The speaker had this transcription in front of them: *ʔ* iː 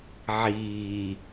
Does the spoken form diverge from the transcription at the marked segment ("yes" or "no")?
yes